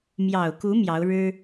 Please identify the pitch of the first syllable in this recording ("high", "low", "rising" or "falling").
low